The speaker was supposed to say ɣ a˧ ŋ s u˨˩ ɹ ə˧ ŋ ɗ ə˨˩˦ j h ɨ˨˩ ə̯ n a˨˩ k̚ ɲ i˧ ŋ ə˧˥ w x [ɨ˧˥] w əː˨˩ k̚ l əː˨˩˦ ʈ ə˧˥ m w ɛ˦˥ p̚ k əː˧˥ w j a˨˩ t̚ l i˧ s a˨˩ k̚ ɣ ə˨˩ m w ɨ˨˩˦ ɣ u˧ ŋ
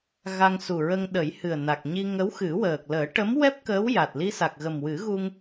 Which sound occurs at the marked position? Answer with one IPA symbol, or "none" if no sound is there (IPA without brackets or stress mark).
ɨ˨˩˦